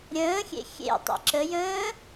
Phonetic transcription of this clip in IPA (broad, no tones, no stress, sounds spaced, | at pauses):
ɾʲ ə̃ː xʲ ḛ xʲ ḛ tˤ ḭ ǁ ə j ə̃ː